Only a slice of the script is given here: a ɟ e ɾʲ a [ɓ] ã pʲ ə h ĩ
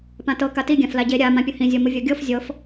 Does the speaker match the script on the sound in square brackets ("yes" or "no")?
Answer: no